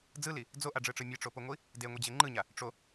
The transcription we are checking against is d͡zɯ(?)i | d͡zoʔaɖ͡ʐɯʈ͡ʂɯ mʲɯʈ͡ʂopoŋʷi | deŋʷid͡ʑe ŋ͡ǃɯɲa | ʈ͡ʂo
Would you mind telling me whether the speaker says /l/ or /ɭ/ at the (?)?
l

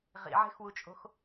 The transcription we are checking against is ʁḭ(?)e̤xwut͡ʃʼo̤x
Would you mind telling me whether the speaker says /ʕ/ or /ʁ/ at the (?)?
ʕ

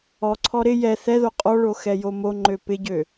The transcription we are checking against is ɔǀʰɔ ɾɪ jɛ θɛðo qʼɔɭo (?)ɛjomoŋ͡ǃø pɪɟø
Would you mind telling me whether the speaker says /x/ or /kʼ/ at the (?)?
x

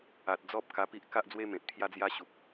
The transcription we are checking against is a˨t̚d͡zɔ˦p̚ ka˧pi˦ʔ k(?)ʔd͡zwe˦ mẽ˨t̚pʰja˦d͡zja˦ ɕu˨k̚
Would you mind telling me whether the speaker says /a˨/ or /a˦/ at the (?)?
a˦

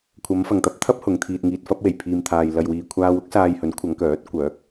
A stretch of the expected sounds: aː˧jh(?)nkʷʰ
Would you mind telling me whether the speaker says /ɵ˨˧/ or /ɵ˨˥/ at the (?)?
ɵ˨˥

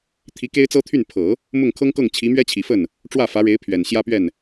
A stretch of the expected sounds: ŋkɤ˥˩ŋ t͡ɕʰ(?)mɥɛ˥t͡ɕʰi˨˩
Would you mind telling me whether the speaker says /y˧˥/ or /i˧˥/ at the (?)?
i˧˥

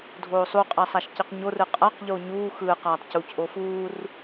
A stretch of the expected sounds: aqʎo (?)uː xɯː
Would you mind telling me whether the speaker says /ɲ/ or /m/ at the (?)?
ɲ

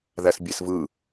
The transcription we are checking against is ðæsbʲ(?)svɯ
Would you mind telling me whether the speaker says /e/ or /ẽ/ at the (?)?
e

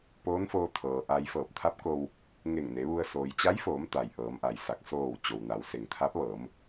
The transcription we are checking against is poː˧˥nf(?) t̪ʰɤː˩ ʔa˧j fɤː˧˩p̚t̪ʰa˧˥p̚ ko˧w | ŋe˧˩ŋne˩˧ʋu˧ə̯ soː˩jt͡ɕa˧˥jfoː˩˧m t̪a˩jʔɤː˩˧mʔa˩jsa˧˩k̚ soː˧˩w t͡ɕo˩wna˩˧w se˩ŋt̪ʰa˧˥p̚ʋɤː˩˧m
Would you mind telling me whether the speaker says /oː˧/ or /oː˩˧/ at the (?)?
oː˧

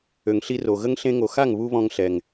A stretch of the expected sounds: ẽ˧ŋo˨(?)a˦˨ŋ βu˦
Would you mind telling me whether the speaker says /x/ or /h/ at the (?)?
x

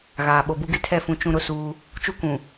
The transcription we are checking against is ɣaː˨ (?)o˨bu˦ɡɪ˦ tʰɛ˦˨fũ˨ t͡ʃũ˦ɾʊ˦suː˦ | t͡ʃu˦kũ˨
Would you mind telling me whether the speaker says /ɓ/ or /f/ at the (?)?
ɓ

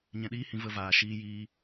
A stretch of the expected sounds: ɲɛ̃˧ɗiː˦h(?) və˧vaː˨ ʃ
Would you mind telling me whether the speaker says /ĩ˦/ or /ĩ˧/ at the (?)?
ĩ˧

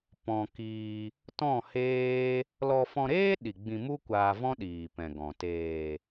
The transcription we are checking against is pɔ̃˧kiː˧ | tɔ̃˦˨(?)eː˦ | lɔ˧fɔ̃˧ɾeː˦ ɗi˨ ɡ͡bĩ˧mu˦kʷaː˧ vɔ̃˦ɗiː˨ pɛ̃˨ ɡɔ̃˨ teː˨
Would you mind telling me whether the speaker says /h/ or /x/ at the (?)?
h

